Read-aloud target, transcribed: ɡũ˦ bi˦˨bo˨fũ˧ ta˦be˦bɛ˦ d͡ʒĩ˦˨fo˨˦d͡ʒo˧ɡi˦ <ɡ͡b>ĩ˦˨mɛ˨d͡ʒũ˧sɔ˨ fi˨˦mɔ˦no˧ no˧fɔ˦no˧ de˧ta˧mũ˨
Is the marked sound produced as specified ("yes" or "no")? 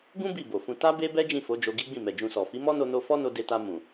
yes